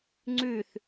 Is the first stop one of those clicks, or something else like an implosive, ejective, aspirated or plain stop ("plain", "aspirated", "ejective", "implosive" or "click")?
click